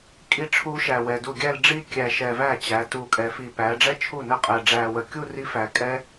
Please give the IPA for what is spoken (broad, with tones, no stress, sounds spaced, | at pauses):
kʼ i˥˩ ʈ͡ʂʰ u˦˥ ʃ æ˨˩ w ɛ˨˩ d u˥˩ ɡʲ æ˥˧ l ɖ͡ʐ i˥˧ kʲ æ˨˩ ʃ ɛ˨˩ v æ˥˩ t͡ɕ æ˩˧ t u˨˩ kʼ ɛ˩˧ f i˨˩ p æ˩˧ ɖ͡ʐ ɛ˥˧ t͡ʃʰ u˥˩ n ə˥˩ qʼ ɛ˨˩ ɖ͡ʐ æ˨˩ w ə˨˩ kʲ u˥˧ r i˦˥ f æ˩˧ kʼ ɛ˦˥